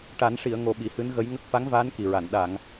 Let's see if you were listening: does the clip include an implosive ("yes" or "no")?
yes